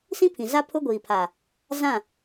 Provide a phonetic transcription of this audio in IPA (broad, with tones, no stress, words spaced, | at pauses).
sĩ˦pʰĩ˨za˦ pʰʊ˦ɡʷiː˨pʰa˨ | zã˦˨